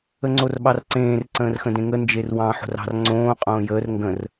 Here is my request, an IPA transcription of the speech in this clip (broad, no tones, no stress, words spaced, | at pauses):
əŋ͡ǀorɓɑrǀẽːr ǀə̃ːrxə̃dẽŋə nd͡ʒerwɑ̃ ħo̤rɑ̤r ŋ͡ǀõː qʼõːjəːr ŋɡə̃r